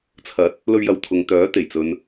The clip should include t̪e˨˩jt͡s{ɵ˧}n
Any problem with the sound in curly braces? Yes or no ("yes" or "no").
yes